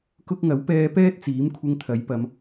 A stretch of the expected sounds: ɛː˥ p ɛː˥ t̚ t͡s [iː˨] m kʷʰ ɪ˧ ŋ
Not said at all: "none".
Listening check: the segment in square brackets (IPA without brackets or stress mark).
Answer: iː˨˥